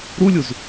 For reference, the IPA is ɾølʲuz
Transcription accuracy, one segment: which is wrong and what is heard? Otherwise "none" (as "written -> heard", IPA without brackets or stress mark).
ø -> u